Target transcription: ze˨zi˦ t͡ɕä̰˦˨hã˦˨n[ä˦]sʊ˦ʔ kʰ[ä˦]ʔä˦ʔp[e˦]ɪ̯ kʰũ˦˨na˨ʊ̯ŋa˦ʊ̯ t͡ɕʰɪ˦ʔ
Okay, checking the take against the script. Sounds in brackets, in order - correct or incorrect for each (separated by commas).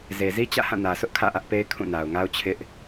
incorrect, incorrect, correct